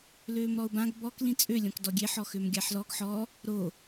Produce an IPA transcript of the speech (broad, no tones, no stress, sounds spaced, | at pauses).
l øː m ɾ ɔ ʊ̯ b ã ɡ b ɔ k l ĩ t͡sʼ ø lʲ ɔ̃ k d ɔ ɡʲ e ħ ɔ x ø m ɡʲ a ħ l ɔ ɡ ħ ɔ | ɾ o